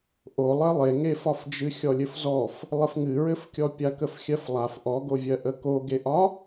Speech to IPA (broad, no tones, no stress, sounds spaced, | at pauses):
ʔ o lˠ ɘ lˠ e ŋ e f ɒ f d͡ʒ ɨ xʲ ɔ lʲ ɘ f z ɔ f | lˠ ɘ f ŋ ɨ ɹ ɘ f kʲ ɔ pʲ a k ə f xʲ ɜ f lˠ a f ʔ ɔ ɡ o vʲ ɜ ʔ ə k o ɡ e ʔ ɒ